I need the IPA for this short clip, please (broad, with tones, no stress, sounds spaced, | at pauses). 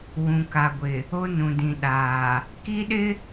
w ũ˨ k a˨ ɡʷ ɪ˨ | o˦ n ũ˨ d ĩ˨ ɗ aː˨ | k i˦ ɗ ɪ˦